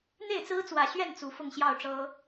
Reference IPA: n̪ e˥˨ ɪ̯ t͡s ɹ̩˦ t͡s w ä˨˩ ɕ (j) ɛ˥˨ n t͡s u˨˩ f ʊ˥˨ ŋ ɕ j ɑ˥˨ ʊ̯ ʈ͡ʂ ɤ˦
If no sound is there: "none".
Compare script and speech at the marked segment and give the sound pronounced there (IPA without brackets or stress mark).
ɥ